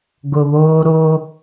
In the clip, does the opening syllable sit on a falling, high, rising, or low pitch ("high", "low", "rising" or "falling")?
low